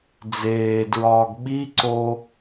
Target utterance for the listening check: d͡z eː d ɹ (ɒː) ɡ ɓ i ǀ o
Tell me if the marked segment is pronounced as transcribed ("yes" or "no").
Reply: yes